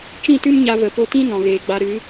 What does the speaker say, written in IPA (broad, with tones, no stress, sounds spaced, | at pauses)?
t͡ʃ ĩ˦˨ t ɨ˦ m ɲ a˧ v ə˨ p o˧ t ĩ˦ n ɔ̃˨ ɣ eː˨ ɡ͡b a˧ ɾ ɨ˨˦